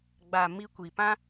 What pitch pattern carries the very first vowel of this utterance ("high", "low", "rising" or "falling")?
low